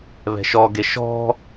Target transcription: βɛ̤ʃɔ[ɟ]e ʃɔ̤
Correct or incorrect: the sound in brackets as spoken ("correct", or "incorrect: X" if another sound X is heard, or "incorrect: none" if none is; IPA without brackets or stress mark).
incorrect: ɡ